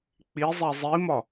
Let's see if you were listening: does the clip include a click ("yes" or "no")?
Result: no